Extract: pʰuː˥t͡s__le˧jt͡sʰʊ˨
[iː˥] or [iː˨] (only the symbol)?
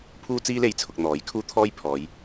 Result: iː˥